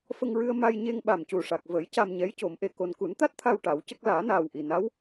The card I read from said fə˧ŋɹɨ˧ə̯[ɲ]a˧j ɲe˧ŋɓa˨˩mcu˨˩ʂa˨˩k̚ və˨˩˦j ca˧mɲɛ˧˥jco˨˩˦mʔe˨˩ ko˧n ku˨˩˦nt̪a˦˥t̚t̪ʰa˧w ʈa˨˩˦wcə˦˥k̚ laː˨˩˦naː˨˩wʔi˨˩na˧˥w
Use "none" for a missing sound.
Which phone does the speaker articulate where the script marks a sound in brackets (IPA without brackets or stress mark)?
m